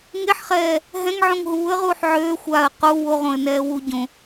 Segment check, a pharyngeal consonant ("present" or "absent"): present